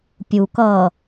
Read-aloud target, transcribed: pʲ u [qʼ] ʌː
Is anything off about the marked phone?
yes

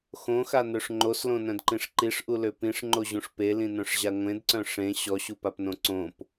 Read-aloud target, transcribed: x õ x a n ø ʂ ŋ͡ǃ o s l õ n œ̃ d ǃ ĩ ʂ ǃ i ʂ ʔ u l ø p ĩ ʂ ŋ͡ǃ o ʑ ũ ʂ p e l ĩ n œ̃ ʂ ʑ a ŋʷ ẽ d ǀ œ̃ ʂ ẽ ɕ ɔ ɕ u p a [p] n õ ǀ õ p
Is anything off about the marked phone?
no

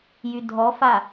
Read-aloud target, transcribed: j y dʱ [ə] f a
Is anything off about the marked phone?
yes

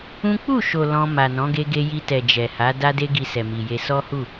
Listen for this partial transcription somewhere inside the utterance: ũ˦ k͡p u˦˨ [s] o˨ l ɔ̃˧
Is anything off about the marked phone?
yes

